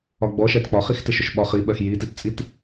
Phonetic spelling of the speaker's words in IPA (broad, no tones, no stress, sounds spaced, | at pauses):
ɒ ɡ͡b ɔ ʃ ɛ t k͡p ɒ χ i x t ɪ ʃ ʊ ʃ ɓ ɒ χ i ɓ ɜ x j i t i t t͡sʼ i t